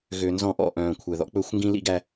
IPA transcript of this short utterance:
ɣ ø˨ n z ɔ̃˦ ʔ ɔ̰˦˨ ʔ œ̃ː˨ kʷʰ ɛ˨ ð ɔ̰˨ k͡p ɵ˦˨ xʷ ŋ ɡ ĩ˦ l ḭ˦ ɡ æ˦

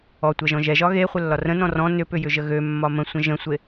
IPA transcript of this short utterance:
ɔ tʷ ɛ ʒ ɔ̃ ʒ ɛ ʒ ɒ ɣ e χʷ ə lː ɒ r ə̃ n ɔ̃ r ɔ̃ n ʏ p ʏ j ʏ ʒ ə ɣ ø mː ɒ m ə̃ sʷ ə̃ ʒ ə̃ sʷ e

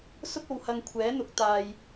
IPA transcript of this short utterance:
s ʊ˥ k̚ o˨ w h ɐ˧ ŋ kʷʰ ɛː˨˥ n̪ ʊ˨˥ k̚ t̪ aː˧ j

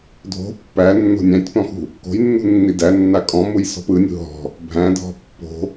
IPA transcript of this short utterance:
dʱ o̤ pː æ nː o̤ nʲ æ̃ tʲ p ɔ̃ x ṳ | k o̤ j nː ṳ nː i d æ nː a kʼ ɔ̃ m u j s ɔ̤ p ɯ nʲ ṳ ɦ ɔ̤ | bʱ æ̃ dʱ ɔ̤ pː o̤

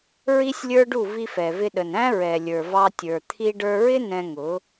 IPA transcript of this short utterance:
ɹ i˦ sʲ lʲ ə˞˦ ɖ u˦˨ v i˧ f ɛ˨ v ɪ˧ ɗ ə˨ n æ̃˦ ɹ ɛ˨ lʲ ə˞˨ v ɑ˧ tʲ ə˞˨ t̪ʰ i˧ ɖ ə˞˧ ɹ ɪ˦ n ɛ̃˧ ŋ ʊ˨˦

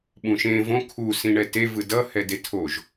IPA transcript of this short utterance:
ɓ ũ ʃ ẽ v õ kʰ u s ĩ ɳ ɛ t e v ɯ d ʌ h ɛ d e tʰ o ʒ

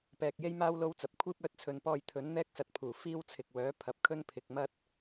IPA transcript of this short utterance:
p ɛː˧ k̚ j e˥ j m aː˥ w l o˥ w t͡s ɐ˨˥ p̚ kʷʰ iː˥ p̚ œː˧ t̚ t͡sʰ ɵ˨ n p ɔː˧ j t̪ʰ ɵ˨˥ n n̪ ɛː˥ k̚ s ɐ˨˥ t̚ pʰ uː˨˩ f iː˥ w t͡sʰ ɪ˨ k̚ w œː˨˥ pʰ ɐ˨ p̚ kʰ ɵ˥ n pʰ ɪ˨ k̚ m ɐ˥ t̚

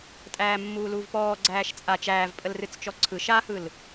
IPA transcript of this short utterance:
tʼ æː mː uː l uː v p ɔː ɡ͡ǀ æː ʃ t͡sʼ a t͡ʃ æː v pʼ ə l r ɨ t͡s t͡ʃ ɔ ǀʰ ɯ ʃ a h ɯ l

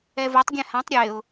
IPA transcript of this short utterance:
ɛ v o tˤ ɡʲ ɛ̃ h ã tˤ ɾʲ e ʊ̯

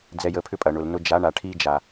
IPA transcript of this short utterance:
d͡z ɛ˧ j ə˨˦ pʰ ʏ˦ pʼ ɐ˨ ɳ ʊ˨ l n ʊ˧ d͡ʒ a˨˦ ɳ a˨ ʈʰ i˧ d͡ʒ a˨

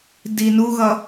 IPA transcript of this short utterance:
d i n u ɣ ʌ

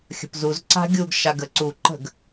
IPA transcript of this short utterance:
xʲ ə̤ p z u z ǀ a̤ ɡʲ u ɡ ʃ a ɡ ə ǀ u ǃ ə̤ ɡ

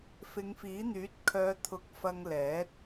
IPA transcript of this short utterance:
f ɪ˨˧ ŋ f iː˨˥ n̪ yː˨˥ t̚ kʰ œː˨˧ t̪ʰ ʊ˨˥ k̚ f ɐ˧ ŋ l ɛː˨˥ t̚

